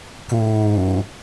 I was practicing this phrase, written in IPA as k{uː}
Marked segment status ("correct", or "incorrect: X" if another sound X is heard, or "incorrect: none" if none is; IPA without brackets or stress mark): correct